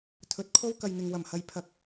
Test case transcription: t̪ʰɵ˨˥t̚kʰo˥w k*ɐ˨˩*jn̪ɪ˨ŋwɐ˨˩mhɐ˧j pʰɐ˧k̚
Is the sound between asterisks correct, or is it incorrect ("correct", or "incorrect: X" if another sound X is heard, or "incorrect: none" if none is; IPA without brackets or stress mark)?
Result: incorrect: ɐ˨